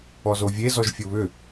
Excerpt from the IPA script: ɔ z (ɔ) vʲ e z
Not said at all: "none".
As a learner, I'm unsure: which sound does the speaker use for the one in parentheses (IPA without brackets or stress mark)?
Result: o